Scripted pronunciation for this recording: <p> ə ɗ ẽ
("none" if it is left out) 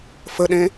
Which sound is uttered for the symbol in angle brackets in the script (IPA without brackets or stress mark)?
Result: f